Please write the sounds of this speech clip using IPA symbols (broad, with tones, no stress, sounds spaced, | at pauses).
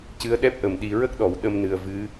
c ɨ˧˥ ə̯ ɗ ɛ˦˥ p̚ ʔ ə˨˩ m ɗ i˨˩ ɹ ə˦˥ k̚ ɗ ɔ˨˩˨ w ɗ ə˧ m n ɨ˨˩ ə̯ v ɨ˧˥